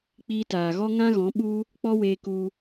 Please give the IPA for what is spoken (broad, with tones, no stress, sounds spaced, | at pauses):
k͡p iː˧ t aː˨ ɣ ɔ˦ ŋ ã˦ ɣ ɔ̃˨˦ ɓ u˦ | k͡p ɔ˦ w eː˧ k u˧